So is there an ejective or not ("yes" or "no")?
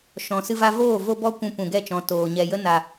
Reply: no